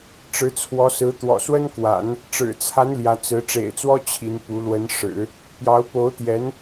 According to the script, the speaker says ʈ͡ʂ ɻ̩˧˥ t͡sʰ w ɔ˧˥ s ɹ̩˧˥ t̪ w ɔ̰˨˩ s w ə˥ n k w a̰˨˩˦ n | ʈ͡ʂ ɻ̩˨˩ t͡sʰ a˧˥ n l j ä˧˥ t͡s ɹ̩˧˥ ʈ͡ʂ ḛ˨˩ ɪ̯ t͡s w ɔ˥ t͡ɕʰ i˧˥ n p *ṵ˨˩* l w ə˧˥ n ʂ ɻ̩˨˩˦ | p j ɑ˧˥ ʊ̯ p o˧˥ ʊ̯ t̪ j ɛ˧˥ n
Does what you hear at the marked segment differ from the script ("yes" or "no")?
yes